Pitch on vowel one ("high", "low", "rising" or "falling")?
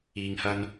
low